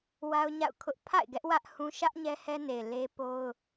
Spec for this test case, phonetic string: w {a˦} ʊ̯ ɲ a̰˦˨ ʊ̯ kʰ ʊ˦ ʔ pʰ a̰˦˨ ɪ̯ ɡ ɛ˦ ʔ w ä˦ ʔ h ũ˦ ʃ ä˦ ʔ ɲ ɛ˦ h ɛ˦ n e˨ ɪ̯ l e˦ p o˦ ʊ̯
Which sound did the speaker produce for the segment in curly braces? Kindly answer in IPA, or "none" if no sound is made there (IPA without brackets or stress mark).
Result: a˦